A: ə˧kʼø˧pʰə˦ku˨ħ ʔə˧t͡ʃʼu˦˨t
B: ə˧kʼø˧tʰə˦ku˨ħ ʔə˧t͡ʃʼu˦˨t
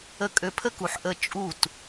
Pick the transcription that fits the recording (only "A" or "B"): A